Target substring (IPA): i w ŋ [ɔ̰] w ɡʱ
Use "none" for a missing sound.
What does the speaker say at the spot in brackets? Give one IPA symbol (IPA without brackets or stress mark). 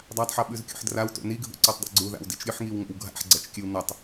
o̰